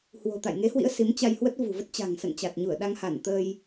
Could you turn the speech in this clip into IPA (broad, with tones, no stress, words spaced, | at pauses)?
hwo̤˨˩t̪a̰˧˨j ŋe˨˦hwḭ˧˥ə̯ si˨˦mt͡ɕa˧jhwə˦˥t̚ vṳ˨˩və˦˥t̚t͡ɕa̤˨˩ŋ sə̰˧˨nt͡ɕa˨˩t̚ɲu˧˩ə̯ ɗa˧ŋha˧˩n t̪ə˧j